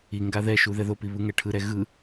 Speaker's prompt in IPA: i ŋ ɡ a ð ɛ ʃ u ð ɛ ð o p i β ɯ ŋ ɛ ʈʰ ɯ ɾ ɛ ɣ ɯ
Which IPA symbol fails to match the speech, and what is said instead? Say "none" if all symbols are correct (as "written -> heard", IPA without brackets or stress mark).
none